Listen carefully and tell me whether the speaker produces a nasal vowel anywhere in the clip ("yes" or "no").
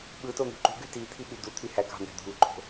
no